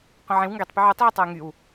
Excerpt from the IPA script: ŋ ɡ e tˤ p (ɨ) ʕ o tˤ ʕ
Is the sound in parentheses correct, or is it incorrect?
incorrect